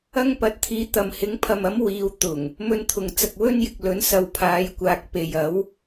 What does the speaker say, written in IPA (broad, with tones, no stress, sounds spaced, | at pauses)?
ɐ˥ ŋ p ɐ˨˥ t̚ t̪ʰ iː˨˥ t̪ ɐ˨ m h ɪ˨˥ ŋ pʰ ɐ˨ m ɐ˨˥ m w iː˨ w t̪ ʊ˨˩ ŋ | m ɵ˧ n t̪ʰ ʊ˨ ŋ t͡s ɐ˨ k̚ w ɵ˥ n j ɪ˨ k̚ l ɵ˨˥ n s ɐ˨˧ w pʰ aː˨˧ j kʷ aː˨ k̚ p e˨ j ɐ˨˥ w